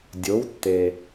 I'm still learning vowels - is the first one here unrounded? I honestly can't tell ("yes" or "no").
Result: no